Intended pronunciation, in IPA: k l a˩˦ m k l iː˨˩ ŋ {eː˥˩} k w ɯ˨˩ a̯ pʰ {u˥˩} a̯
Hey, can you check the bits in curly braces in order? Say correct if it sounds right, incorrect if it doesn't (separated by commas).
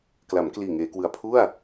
incorrect, correct